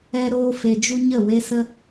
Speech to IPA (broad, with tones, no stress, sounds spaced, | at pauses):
ɛ˧ ɾ oː˧ f e˨ d͡ʒ u˧ ɲ ə˦˨ w e˦ s ə˦